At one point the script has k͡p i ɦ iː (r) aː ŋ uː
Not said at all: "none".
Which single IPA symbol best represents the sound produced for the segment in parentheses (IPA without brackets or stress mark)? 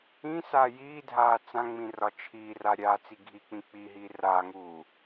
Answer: r